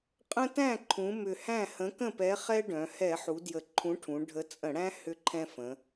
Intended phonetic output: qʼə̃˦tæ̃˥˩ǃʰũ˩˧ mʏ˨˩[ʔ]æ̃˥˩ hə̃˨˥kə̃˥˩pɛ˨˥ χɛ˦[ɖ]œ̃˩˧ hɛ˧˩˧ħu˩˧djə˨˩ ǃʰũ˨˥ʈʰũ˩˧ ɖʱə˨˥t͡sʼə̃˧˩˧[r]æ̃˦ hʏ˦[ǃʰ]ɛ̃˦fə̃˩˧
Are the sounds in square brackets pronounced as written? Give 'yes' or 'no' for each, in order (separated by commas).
no, yes, no, yes